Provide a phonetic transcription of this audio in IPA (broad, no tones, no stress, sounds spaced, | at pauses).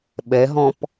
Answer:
ɓ ɛ ɦ ɔ̃ p